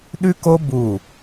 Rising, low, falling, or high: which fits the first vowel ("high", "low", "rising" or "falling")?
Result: high